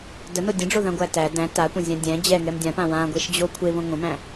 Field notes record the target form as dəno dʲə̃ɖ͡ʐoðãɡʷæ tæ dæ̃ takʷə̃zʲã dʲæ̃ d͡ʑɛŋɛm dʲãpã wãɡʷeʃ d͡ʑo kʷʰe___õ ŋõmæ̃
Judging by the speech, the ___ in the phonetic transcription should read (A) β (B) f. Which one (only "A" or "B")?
A